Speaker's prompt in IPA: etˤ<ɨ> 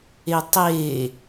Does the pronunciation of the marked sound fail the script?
yes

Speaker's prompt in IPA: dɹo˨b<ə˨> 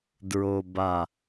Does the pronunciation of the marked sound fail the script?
yes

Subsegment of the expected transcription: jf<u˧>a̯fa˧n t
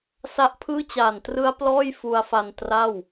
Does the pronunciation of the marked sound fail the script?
no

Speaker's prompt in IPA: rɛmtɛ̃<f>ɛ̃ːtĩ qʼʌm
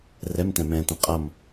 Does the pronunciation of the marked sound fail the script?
yes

